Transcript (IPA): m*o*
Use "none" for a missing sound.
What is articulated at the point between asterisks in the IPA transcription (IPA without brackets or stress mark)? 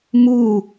u